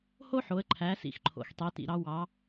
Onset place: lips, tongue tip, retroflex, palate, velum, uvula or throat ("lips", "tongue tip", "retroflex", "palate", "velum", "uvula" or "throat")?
throat